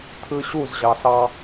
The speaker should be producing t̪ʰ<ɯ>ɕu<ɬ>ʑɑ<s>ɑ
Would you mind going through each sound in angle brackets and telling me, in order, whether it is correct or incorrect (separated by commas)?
correct, incorrect, correct